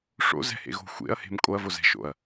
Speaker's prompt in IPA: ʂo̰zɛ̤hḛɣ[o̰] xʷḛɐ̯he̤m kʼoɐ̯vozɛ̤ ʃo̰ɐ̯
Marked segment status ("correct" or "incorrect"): incorrect